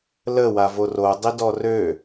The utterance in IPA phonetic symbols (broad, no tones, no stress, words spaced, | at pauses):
lə wavoro dˤidɔrø